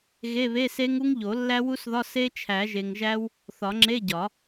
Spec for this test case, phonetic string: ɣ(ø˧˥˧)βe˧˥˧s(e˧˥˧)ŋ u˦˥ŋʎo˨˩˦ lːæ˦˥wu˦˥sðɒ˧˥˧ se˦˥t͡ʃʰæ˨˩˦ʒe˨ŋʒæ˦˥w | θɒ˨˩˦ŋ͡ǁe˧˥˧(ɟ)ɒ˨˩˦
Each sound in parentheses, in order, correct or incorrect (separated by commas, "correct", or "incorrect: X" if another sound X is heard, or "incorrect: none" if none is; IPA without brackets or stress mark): incorrect: e˧˥˧, incorrect: e˦˥, correct